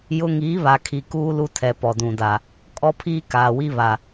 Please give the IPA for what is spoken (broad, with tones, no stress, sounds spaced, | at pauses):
j ʊ˦ ŋ iː˨˦ β a˨ kʰ i˨ k uː˦ l u˦ tʰ ɛ˨ p ɔ˨ d ũ˨ d a˨ | kʼ ɔ˦ pʰ iː˦ k aː˨ w i˦ β a˨